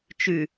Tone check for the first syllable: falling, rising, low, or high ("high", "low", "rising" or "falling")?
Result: low